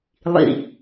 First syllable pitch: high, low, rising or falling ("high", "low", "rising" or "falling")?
low